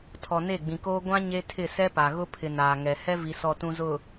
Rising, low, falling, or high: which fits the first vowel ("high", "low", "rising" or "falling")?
low